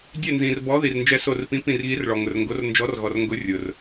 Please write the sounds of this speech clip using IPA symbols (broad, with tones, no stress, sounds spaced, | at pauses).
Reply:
dʲ ɛ˧˩ n z ĩ˩ r b ɔ˨˥ ð i˩ r n d͡ʒ ɛ˨˥ s o˧˩ r p ĩ˨˥ p ĩ˧˩ r ɣ i˨˥ r ɭ ɔ˩ ŋ ʊ˩ r ŋ ɡ o˨˥ r n d͡ʒ ɔ˨˥ r ɣ ɔ˩ r ŋ ɡ ʊ˨˥ rʲ ʊ˩ r